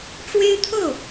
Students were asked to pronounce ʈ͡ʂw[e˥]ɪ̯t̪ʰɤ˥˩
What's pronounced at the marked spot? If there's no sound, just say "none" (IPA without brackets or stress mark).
e˥